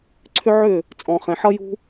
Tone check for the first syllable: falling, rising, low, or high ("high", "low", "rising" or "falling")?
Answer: high